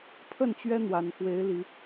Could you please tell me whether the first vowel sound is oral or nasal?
oral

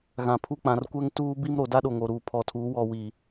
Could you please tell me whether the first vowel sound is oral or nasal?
nasal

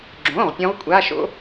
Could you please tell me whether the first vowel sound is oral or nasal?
nasal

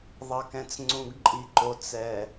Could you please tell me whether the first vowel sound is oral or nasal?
oral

